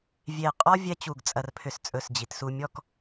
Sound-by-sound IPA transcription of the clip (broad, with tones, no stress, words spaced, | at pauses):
vʲe˧˩qʼɔ˥ vʲɛ˥t͡ɕu˧˩ɡt͡sʼɐ˧rpʰʏ˧s t͡sʼɵ˧˩sd͡ʑi˩˧tsu˧mʲɔ˥˧k